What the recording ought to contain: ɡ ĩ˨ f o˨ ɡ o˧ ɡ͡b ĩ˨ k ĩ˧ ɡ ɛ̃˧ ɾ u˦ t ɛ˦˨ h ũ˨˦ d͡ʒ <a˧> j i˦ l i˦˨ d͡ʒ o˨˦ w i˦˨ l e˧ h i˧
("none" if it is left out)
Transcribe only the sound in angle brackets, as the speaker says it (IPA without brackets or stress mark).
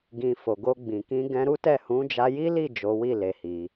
a˧